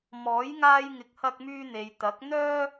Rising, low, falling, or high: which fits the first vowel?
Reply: rising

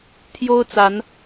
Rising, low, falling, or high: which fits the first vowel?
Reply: high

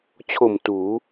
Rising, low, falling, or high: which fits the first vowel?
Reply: low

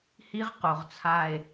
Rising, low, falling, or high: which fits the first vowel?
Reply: high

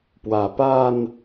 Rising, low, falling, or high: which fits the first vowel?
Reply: low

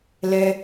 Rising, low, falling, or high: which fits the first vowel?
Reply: high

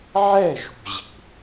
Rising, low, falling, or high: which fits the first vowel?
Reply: falling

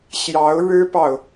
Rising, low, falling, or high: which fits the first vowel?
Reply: rising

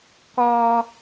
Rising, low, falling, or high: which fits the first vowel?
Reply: high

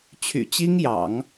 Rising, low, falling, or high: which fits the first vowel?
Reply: low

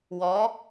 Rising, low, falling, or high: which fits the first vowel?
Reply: rising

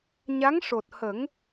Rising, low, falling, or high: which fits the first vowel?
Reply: rising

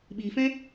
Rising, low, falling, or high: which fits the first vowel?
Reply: low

